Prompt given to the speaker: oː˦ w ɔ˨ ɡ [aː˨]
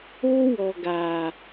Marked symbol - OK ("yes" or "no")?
yes